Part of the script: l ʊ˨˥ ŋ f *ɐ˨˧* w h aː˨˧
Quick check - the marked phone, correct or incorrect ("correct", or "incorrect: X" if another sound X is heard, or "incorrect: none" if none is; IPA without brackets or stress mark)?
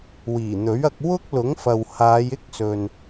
incorrect: ɐ˨